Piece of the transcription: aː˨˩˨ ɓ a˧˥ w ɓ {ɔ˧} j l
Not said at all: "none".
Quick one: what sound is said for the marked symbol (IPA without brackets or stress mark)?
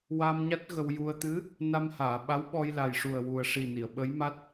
ɔ˧